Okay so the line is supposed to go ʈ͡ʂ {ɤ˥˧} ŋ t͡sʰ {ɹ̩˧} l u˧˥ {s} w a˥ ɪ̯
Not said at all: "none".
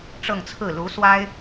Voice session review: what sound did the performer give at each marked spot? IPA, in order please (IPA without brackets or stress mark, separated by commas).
ɤ˥˧, ɹ̩˥˩, s